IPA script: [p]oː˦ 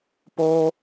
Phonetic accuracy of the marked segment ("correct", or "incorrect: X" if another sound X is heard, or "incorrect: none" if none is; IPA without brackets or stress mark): correct